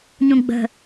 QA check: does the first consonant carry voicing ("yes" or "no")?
yes